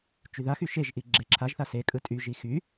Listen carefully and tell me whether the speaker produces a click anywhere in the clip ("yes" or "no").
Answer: yes